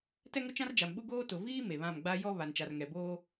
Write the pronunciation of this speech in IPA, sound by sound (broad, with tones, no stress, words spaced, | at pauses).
tɛ˦ŋʊ˦t͡ʃã˦rd͡ʒa˨m ɓu˦ɡoː˦ tʊ˨viː˦ me˨βã˦˨m ɡ͡ba˦ jɔ˦ βa˨nt͡ʃa˨rŋɛ˨boː˦